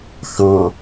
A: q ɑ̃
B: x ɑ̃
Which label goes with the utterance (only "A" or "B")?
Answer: B